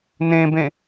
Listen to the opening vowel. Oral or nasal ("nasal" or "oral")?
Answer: nasal